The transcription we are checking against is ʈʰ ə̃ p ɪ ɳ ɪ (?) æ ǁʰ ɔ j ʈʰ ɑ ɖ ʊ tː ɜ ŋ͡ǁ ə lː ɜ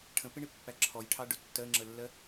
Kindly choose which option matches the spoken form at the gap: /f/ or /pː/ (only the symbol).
pː